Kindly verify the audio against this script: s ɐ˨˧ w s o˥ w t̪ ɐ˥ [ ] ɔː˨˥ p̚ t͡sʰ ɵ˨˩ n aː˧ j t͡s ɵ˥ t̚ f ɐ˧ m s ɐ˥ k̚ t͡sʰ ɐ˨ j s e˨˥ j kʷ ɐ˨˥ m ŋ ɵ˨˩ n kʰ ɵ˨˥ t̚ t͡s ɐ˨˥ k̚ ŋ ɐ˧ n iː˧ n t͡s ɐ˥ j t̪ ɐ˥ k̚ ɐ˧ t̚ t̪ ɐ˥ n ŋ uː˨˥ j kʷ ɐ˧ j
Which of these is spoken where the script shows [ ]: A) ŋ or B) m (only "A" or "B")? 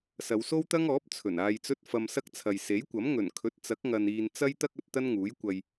A